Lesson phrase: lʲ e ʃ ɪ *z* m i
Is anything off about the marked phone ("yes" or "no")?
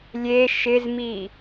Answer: no